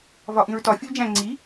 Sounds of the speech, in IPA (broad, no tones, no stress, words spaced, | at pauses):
vɒʔĩɹtɒ fʲold͡ʒæ̃ ŋ͡ǀi